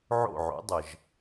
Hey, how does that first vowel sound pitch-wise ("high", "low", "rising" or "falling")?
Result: falling